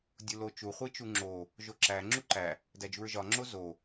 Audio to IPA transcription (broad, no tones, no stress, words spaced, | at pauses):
dʲulot͡ʃu χʷit͡ʃuŋ͡ǁo | ʒoǁæ ŋ͡ǁuǃæ | dæd͡ʒuɹʒɒ ŋ͡ǁozo